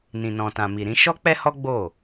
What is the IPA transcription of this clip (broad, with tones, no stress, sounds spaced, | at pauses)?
n ĩ˨ n ɔ̃˨ t ã˨ m i˨ ɾ ĩ˨˦ ʃ ɔ˦ k͡p ɛ˦ h ɔ˦ ɡ͡b o˦˨